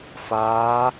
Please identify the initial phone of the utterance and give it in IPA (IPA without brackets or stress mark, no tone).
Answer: f